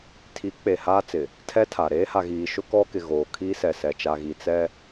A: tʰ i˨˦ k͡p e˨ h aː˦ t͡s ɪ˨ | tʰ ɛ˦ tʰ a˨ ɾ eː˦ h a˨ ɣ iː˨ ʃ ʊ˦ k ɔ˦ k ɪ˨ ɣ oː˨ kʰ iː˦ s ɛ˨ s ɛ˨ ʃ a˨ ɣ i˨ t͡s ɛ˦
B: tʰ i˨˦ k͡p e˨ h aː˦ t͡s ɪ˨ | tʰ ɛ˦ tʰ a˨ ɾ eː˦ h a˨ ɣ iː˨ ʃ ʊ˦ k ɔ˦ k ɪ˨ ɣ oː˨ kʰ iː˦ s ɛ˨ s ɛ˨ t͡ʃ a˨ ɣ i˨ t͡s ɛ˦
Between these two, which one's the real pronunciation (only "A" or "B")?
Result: B